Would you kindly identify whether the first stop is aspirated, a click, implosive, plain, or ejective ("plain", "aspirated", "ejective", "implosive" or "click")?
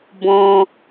plain